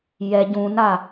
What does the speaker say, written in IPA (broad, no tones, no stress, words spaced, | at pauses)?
jɛ ɟũna